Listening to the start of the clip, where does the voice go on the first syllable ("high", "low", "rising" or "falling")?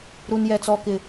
high